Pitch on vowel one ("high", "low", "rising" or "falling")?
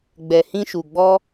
low